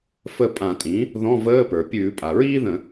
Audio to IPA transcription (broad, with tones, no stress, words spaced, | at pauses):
fə˦˨ pʼã˧˩˧tʼĩ˩˥ | ðɔ̃˧˥˧vəː˧˥˧pə˞˩ pʲʉː˧˩˧pʼa˩ɹiː˥ðə̃˧˩˧